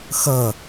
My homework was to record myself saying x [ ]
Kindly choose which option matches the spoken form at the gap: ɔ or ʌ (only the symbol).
ʌ